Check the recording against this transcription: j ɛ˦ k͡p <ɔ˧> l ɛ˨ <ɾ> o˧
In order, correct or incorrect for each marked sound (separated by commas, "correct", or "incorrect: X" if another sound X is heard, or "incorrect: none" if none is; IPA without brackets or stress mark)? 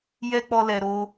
correct, correct